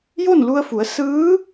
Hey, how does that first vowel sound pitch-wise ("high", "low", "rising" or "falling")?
falling